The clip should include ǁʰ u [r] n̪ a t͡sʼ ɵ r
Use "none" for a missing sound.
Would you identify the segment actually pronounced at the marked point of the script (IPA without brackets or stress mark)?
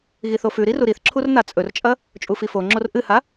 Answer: r